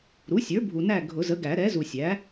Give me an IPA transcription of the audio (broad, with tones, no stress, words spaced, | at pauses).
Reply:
ɾu˩˥sʲə˞˩˥ bʱu˨næ˦˨ ɡʱʊ˨˩˦zə˩˥ ɡæ˨˩˦ɾɛ˩˥zu˨sʲæ˩˥